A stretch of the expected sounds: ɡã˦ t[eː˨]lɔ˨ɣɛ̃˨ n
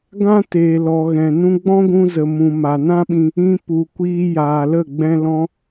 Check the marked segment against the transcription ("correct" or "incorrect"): correct